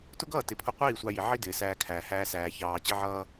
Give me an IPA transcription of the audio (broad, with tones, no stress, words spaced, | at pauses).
tʊ˦ɡʌː˦˨tɪ˨ pʰʊ˧qʷiː˦˨ sʷɑ˧ji˨ʕi˦ dɪː˨sæː˧kʰæː˨ hæː˧sæː˨ çɑː˨t͡ɕɪ˧ʕʌː˧